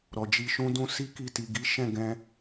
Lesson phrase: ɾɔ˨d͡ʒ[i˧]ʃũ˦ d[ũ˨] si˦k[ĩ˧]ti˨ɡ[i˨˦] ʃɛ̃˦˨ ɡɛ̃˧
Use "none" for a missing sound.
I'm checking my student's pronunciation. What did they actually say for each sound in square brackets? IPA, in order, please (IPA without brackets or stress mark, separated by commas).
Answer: i˧, ũ˧, i˧, i˨˦